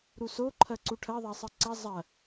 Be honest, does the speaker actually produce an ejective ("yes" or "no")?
no